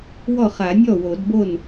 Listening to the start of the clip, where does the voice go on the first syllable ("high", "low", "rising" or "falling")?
falling